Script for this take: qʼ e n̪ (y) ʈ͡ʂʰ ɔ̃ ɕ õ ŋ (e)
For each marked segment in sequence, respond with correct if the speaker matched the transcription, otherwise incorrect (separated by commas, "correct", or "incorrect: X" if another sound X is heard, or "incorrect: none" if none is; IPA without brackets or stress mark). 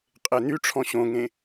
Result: correct, incorrect: ẽ